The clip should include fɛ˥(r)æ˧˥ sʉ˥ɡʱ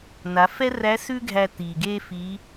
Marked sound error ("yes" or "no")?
no